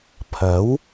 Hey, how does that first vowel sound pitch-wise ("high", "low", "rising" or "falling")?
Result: rising